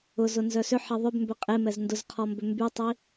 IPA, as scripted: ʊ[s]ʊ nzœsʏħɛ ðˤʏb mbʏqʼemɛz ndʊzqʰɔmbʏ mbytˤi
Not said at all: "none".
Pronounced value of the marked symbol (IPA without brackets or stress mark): z